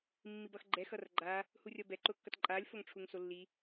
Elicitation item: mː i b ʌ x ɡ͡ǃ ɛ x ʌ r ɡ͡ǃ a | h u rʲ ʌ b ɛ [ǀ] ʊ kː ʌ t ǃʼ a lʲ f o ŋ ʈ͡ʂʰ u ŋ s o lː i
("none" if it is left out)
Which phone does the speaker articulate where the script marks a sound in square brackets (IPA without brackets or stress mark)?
ǃ